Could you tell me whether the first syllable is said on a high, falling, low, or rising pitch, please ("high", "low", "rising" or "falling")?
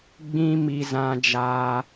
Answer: high